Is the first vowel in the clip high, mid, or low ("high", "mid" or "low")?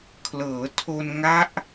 mid